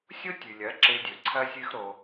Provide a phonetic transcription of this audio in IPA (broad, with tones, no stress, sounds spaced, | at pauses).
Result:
sʲ o˦ tʲ ʉ˨ lʲ ɐ˨˦ ǁ e˧ dʲ ɵ˨ ǀʰ ɐ˦ sʲ ɨ˦ x ɾ o˧